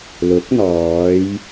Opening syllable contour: rising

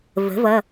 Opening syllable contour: rising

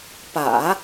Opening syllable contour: low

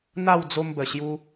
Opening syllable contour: falling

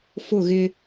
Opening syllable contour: falling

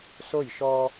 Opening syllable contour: falling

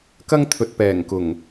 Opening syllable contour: high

